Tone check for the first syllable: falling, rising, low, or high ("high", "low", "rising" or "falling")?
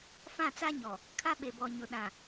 falling